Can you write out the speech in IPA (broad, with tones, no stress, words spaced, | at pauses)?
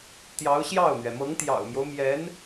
t̪jɑ˧˥ʊ̯ɕjɑ˥˩ʊ̯n̪ɥɛ˩ mɤ˧˥ŋt̪jɑ̰˨˩ʊ̯mjo˦ʊ̯ mjɛ˧˥n